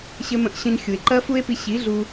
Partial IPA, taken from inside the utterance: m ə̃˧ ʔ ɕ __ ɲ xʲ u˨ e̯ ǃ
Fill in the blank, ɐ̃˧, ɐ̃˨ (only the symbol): ɐ̃˧